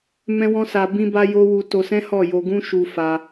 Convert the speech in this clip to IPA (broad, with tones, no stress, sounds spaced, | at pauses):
m ɛ̃˦ w ɔ̃˦ s a˧ b ĩ˦ b a˦ j o˦ w u˧ t o˧ s ɛ̃˦ h ɔ˦˨ j o˧ ɡ ũ˦ ʃ u˧ f a˧